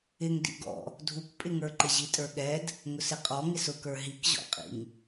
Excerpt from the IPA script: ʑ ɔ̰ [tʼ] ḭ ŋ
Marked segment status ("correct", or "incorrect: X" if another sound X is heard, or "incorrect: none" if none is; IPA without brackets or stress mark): incorrect: qʼ